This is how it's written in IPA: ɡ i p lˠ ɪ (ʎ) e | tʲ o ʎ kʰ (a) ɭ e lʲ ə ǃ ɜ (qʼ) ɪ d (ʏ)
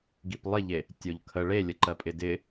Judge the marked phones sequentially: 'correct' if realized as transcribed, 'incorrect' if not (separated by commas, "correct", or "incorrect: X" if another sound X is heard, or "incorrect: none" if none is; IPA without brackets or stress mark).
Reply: correct, incorrect: ə, incorrect: pʼ, incorrect: ɪ